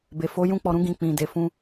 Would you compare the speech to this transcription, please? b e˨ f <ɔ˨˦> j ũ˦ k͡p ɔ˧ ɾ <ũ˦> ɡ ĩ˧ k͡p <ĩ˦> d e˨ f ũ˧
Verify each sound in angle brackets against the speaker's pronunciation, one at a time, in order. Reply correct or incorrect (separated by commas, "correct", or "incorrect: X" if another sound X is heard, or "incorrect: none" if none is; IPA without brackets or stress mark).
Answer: incorrect: o˨˦, correct, incorrect: ĩ˨